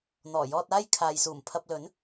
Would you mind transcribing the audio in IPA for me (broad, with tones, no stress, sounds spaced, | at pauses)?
n̪ ɔː˨˩ j ɔː˧ t̚ aː˥ j kʰ aː˨ j s uː˨˩ m pʰ ɐ˧ p̚ l ɵ˨˥ n